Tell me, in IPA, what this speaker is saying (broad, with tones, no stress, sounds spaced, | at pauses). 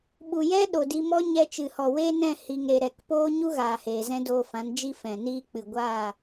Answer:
ɓ u˨ j ɛ˦ ɗ o˨ d i˧ m ɔ˦ ɲ ɛ˧ t͡ʃ ɨ˨ h ɔ˨ w eː˦ n ɛ̃˦˨ h i˨ ŋ ɾ e˨ ɾ ɛ˨ k p oː˦ ɲ u˦ ɣ aː˨ h eː˨ z ɛ̃˦ d oː˧ f ã˨˦ n d͡ʒ i˦ f ɛ̃˨ n iː˦ k͡p ɨ˨ ɡʷ aː˦˨